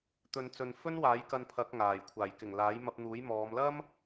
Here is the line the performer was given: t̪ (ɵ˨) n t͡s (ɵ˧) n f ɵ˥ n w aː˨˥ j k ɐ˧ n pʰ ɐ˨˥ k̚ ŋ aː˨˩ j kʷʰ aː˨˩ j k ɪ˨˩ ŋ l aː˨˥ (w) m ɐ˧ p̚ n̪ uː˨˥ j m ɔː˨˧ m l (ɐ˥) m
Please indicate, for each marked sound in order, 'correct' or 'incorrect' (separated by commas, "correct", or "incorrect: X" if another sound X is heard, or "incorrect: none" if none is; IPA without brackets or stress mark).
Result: correct, incorrect: ɵ˨, incorrect: j, correct